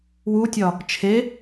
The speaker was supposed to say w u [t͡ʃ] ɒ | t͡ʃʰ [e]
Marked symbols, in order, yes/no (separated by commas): no, yes